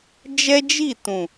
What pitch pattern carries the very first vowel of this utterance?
high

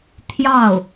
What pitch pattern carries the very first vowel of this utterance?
falling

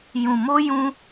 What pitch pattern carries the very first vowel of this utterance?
low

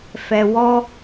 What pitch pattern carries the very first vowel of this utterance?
low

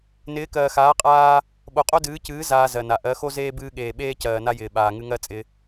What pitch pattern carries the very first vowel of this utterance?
rising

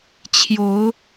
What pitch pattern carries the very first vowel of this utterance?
rising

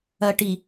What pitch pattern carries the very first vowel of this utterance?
low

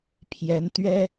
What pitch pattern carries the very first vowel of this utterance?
rising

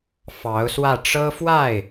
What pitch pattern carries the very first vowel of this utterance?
rising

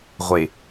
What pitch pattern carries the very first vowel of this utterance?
low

